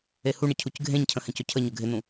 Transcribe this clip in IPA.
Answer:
ehuɳə cʰucɡʱẽɲcʰə̃ hɛ̃cɵcʰəɲɵ ɡʱɪn̪ũ

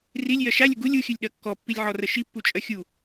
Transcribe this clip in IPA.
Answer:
rilʲjɜ ʃalʲə ɡulʲ uxʲɨlʲɗɜ kːɔpːilʲʕɔrə ʃipːut͡ʃʼɜ xʲu

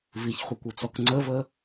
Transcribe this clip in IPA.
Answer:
viçχʷɛkʷut͡sɔk ŋ͡ǀəvə

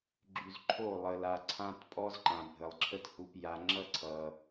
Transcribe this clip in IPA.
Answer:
ɡ͡ǁy˨zǃʰo˦˨ lˠə˨la˨ ǀʰã˧t pʼɔ˦zǃã˨ bʱə˨lˠǁʰə˦t hu˨pja˨ŋ͡ǁʌ˦ ǀʰʌ˨

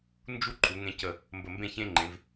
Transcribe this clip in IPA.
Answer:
nd͡ʒu˥ǃʰu˩˧ŋẽ˧ cə˧˩ | mbə˧˩mbẽ˥˧çẽ˥ ŋ͡ǃẽ˩˧v

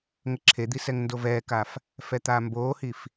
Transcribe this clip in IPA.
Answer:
ŋəǁʰed̪isɛŋ ndovɛːkaf | fɛt̪aːmboːhif

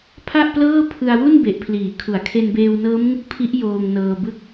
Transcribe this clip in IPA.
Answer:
pʰa˥˩ʔplɤː˥˩pʰɯ˧a̯ wu˥˩n be˨˩ʔpʰliː˩˦ kʰu˩˦a̯kʰe˧nbeː˧wnɤː˦˥m ŋɯ˥˩k̚pʰi˦˥ʔ joː˧ŋnɤː˧bɯ˥˩k̚

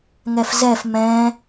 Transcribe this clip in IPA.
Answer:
ŋɛfzɛf mɛ̃

